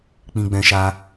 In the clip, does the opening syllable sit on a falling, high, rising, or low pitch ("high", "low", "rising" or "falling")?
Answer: high